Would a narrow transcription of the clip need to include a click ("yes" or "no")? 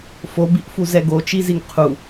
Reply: no